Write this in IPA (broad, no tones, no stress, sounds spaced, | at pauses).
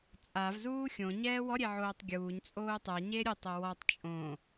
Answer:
t͡sʼ a v z uː xʲ õ ɲ ɛː w ɔ ɾʲ e ʕ oː tˤ ɡʲ uː ɲ t͡sʼ oː tˤ ɛ ɲ e ɾʲ ʊ tˤ ɛ w ɔ tˤ t͡ʃʼ õ